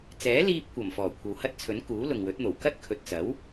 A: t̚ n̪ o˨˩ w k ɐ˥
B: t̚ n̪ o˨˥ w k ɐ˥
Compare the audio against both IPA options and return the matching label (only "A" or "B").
A